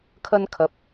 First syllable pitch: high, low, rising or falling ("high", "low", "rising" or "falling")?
high